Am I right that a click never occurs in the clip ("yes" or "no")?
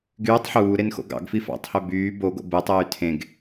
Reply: yes